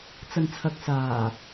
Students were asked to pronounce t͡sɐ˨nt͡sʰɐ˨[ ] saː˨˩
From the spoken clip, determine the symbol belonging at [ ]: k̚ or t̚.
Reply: k̚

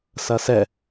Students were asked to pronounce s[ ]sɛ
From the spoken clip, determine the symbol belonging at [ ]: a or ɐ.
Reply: ɐ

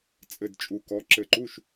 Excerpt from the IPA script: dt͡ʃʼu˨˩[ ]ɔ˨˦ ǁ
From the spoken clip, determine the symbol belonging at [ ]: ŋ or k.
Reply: k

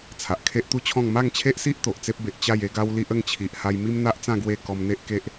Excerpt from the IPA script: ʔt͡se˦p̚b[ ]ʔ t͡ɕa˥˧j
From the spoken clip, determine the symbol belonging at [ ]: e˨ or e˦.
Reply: e˨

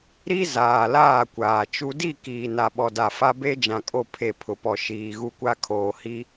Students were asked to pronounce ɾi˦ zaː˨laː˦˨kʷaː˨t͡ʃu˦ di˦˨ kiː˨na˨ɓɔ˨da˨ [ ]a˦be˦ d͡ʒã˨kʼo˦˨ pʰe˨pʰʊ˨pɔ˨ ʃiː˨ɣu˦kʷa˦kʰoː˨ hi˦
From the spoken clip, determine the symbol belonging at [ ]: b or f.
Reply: f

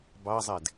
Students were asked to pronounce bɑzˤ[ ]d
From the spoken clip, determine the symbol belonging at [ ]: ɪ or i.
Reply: ɪ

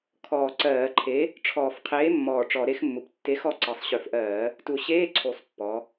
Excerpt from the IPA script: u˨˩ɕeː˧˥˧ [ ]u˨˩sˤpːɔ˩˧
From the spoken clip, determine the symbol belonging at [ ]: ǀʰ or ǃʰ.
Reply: ǀʰ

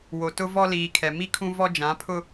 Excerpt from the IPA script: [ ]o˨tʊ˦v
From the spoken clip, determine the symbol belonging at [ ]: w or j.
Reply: w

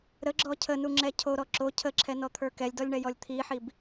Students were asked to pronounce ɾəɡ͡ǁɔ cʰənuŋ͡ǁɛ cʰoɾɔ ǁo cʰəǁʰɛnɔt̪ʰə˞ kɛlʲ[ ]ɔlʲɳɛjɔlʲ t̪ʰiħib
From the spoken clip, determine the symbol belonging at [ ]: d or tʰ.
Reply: d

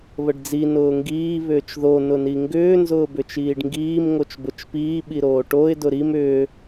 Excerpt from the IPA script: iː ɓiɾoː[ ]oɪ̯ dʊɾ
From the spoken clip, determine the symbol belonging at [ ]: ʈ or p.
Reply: ʈ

